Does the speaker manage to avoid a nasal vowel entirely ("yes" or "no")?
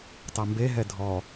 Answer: yes